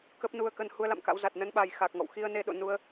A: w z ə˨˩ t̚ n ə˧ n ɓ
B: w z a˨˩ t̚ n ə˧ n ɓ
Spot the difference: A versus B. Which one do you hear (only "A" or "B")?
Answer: B